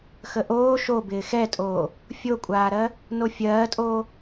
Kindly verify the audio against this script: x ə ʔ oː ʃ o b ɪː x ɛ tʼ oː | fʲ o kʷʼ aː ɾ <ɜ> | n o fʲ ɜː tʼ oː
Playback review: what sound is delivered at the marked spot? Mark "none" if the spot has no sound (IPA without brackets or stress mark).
ɜ